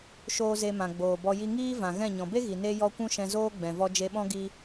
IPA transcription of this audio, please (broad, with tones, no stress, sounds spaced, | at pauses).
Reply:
ʃ oː˦ z e˧ m ã˨ ɡ͡b oː˨ b ɔ˧ j i˧ ŋ iː˦ v ã˨ ɣ ɛ̃˦˨ ɲ ɔ̃˨ b e˦ ɣ i˨ n e˧ j ɔ˦ kʷ ũ˦ ʃ ɛ̃˧ z oː˦ ɡ͡b ɛ̃˨ v ɔ˧ d͡ʒ e˧ ɓ ɔ̃˦ ɡ i˧